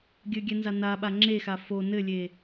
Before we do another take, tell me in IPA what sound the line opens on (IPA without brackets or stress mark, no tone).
ɡʲ